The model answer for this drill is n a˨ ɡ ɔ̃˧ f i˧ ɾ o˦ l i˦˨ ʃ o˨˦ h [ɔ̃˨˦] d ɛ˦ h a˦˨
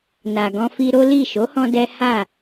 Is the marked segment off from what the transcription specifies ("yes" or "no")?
yes